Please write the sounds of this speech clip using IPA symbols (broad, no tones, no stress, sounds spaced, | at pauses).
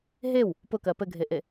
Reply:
ɦ e w | p ʊ k ɜ p ɘ ɡʱ e ʔ e